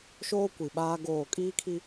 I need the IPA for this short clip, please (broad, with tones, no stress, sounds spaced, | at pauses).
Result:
ʃ oː˦ kʷ i˨ ɓ aː˦ ɡ oː˦˨ kʼ iː˦ kʰ i˦